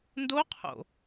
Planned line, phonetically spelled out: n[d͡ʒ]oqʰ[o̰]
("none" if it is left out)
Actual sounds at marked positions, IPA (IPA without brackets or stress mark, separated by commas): d, o̰